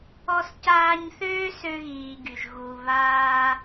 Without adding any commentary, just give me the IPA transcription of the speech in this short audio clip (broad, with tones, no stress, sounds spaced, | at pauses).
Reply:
ɔ˦ s c aː˦ ɲ θ øː˥ s ø˦ ɣ iː˨ ɡ y˩ ʒ ɣ u˨ β aː˦